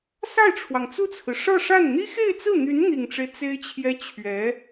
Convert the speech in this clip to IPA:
s a˥˩ ɪ̯ ʈ͡ʂʰ w ɑ˩ ŋ t͡s u˥˩ t͡sʰ ɹ̩˩ ʂ ɤ˥˧ ʂ a˥˩ n n̪ i˥ x e˥˧ ɪ̯ t͡s ɹ̩˥˩ n̪ y˧˥ n n̪ i˨˩ ŋ ʈ͡ʂ e˦ ɪ̯ t͡s e˥ ɪ̯ t͡ɕʰ j ɛ˥ t͡ɕʰ ɥ ɛ˧˥

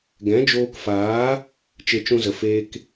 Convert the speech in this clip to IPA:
ɡ ɛ̃˨˦ d͡ʒ oː˧ k f aː˨˦ | t͡ʃ e˧ t͡ʃ ũ˧ z ə˨ f eː˦ k

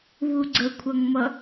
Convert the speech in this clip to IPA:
β u ɡ͡ǀ ə kʷʰ ʌ ŋ m ʌ

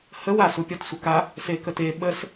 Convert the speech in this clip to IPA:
h ə w a s u pʲ ɒ t sʷ ə k a | s e k ə t e ɓ ə s

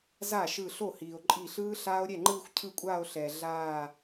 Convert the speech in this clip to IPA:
z a˥˩ ʃ ɯ˧˩ ɬ o˥˩ h iː˩ o̯ ǃʼ i˧˩ ɬ ɯː˦˥ ɬ aː˦˥ o̯ ɾʲ ɛ˥˩ ŋ͡ǃ ɯː˥˧ xʷ cʰ ɯ˥˧ kʷʼ aː˥˧ o̯ ɬ ɛː˩ ɮ aː˧˩

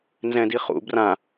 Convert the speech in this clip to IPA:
n z ɛ̃ d i χ ṵ b r ã

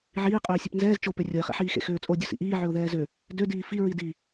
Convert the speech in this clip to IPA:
ʕ iː qʼ øː sʲ ø p n z ɛː z t͡ʃ o p ø rʲ o ɪ̯ χ ḛ ħ iː x ḛ x øː t͡sʼ o dʲ o s ḭ ʔ iː ʕ ø ʊ̯ ð ɛː z ø | d ø d iː f i ɹ i d i

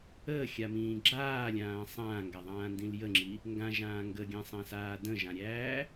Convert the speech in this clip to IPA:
əː xʲ a m ĩː ɡ͡ǁ aː lʲ ãː sˤ ãː ŋ ɡ a ðˤ ãː n d ĩ l j ə ŋ͡ǁ i | ŋ ɡ ã ʒ ãː ŋ ɡ ə ɡʲ æ̃ sˤ æ̃ s aː d ə̃ ʒ ã ɾʲ æː

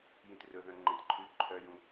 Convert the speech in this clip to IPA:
j ĩ t r ɵ ð œ̃ ŋ͡ǃ ẽ t ǃʰ ʉ ǃʰ œ j ũ

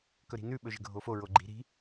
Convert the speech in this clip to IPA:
k ɵ ɾ i̤ n ʉ ɓ ɵ ʒ ə̤ ɡʱ o f o ɹ o ɡ͡ǃ i̤ ɾ i̤

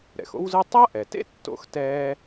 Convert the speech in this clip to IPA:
ɾ ɛ̰˩ x o̰˥ w z ɯ˥ tˤ a˥ ʔ ɛ˩ t ḛ˥ tː o̰˥ x t ɛː˥

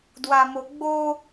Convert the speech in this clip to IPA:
d w a m o ɡ͡b o

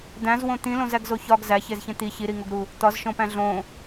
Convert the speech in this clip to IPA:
d̪ æ̃ z w õ t̪ ĩ l õ z æ ɡ z o ç ɒ ɡ z æ ç e z ç ẽ t̪ i ç i ɾ i ŋ o ɡ ɾ u | t̪ ɒ z ʃ õ p æ̃ ɮ õ

